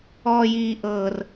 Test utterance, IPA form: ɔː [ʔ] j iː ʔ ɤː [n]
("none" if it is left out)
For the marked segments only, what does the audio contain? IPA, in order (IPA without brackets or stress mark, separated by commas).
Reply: none, r